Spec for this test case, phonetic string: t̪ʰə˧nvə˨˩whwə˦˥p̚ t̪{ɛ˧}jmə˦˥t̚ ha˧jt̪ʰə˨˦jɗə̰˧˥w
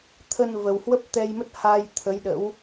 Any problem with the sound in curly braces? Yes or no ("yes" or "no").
no